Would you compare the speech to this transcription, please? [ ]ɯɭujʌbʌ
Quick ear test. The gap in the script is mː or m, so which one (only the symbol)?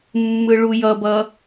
mː